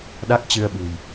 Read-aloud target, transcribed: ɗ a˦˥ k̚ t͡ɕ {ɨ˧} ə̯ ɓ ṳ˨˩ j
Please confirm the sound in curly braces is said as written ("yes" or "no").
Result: yes